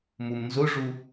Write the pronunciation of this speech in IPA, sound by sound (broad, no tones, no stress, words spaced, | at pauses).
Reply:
mumnzʊʐu